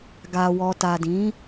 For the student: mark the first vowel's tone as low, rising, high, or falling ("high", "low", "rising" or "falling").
low